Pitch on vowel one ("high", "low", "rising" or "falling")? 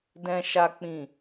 high